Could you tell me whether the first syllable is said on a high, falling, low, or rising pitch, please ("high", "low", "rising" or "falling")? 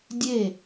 falling